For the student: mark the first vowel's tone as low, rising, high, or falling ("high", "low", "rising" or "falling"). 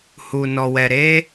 low